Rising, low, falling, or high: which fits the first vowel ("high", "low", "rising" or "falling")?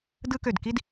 high